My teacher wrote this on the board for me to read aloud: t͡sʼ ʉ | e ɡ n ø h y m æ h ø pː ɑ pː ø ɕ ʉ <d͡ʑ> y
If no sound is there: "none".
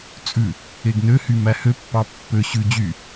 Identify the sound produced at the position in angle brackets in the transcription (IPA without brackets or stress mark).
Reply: d͡ʑ